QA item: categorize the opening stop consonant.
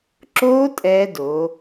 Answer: click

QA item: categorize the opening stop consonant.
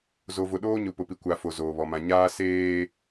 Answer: implosive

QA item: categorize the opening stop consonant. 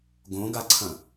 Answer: plain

